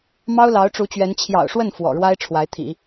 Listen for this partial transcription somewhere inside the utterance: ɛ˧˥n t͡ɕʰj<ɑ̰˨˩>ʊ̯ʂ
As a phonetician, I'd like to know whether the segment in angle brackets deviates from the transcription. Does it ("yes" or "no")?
no